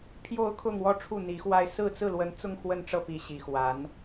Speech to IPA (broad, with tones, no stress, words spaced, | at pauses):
pʰjo˥˧ʊ̯kʰʊ˥˧ŋwɔ˥˧ ʈ͡ʂʰu˥˩n̪i˧˥xwa˥ɪ̯ sɹ̩˥˧t͡sɹ̩˥˩lwə˧˥nt͡sʊ˥˧ŋ xwə˥˧nʈ͡ʂɤ˥˩pi˧˥ ɕi˧˥xwa˧˥n